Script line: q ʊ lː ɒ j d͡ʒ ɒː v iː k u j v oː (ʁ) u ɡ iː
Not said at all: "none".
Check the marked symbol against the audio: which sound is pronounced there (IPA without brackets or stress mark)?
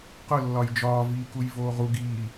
ʁ